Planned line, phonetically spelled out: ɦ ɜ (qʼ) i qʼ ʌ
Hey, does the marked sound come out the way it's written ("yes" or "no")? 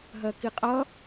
no